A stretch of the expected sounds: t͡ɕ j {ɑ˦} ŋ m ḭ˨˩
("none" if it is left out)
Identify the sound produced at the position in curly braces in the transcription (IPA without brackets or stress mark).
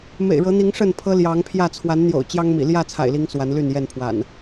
ɑ˦